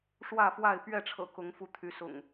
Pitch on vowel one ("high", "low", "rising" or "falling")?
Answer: falling